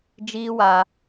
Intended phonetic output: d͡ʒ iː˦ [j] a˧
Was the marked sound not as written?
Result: yes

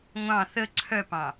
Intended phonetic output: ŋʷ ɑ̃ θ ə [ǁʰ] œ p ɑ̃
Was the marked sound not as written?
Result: yes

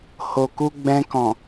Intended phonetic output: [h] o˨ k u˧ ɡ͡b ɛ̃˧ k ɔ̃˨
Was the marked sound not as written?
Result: no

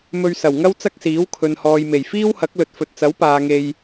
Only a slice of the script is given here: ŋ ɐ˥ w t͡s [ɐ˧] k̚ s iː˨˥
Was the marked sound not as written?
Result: yes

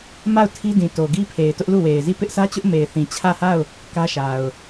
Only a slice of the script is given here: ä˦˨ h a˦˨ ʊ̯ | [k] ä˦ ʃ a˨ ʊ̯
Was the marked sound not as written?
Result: no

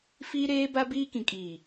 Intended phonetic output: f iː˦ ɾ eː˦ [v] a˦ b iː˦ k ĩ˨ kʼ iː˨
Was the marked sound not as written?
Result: yes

